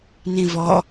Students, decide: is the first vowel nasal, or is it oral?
nasal